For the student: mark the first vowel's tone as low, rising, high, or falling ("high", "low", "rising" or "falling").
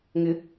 rising